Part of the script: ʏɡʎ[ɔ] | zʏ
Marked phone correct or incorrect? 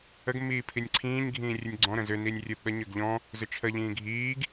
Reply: incorrect